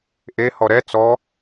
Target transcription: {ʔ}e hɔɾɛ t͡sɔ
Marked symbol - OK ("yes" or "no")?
yes